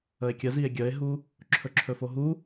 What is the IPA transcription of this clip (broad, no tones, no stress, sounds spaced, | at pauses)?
ə e̯ kʲ ə z i e̯ ɡʲ ə e̯ ɦ u | ǁʰ ɵ ǁʰ ɵ f o ɦ u